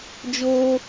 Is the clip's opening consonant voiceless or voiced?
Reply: voiced